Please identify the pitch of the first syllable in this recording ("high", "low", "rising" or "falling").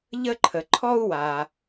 high